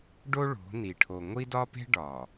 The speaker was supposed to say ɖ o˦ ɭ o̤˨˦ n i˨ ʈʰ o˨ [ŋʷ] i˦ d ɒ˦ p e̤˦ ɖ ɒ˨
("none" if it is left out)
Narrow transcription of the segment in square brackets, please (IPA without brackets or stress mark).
ŋʷ